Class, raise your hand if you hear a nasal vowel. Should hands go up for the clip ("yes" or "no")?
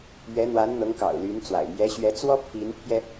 no